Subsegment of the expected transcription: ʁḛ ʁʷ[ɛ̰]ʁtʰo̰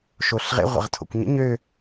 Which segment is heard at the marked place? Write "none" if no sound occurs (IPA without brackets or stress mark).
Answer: ə̰